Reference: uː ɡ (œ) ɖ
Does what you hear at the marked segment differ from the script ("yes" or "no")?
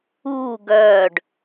no